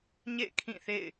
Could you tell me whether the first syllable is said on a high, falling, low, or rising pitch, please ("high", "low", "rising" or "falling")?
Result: falling